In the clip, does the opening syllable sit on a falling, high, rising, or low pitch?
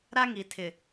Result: high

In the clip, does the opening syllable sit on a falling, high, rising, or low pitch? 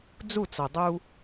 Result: falling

